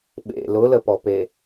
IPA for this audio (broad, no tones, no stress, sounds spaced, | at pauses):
ɓ ḛ l ʊ l ə p ɔ p e